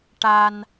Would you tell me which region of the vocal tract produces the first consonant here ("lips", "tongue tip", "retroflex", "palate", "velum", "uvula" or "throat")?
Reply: retroflex